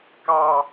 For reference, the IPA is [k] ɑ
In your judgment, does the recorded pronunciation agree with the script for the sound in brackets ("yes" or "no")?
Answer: yes